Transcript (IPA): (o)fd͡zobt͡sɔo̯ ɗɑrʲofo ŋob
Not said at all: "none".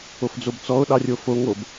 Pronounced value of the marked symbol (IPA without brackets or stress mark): o